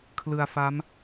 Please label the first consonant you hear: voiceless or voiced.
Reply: voiceless